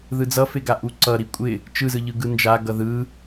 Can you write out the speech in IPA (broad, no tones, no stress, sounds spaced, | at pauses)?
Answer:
ð ɯ d͡z ʌ f e ɡ a ʔ u ǀ ʌ ɾ i kʷʼ ɪ | t͡ʃ ɯ z ɯ ʎ ɯ ɡ ɯ n d͡ʒ a ɡ ʌ ð ɯ